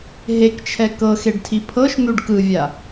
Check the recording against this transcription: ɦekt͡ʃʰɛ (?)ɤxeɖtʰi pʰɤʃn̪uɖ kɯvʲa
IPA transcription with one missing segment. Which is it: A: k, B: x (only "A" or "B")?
A